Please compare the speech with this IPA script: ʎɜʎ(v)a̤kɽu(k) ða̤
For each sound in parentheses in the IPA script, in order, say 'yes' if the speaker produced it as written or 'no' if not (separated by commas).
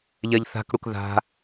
no, yes